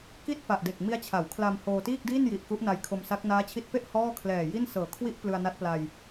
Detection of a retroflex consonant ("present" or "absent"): absent